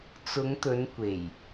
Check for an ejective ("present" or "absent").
absent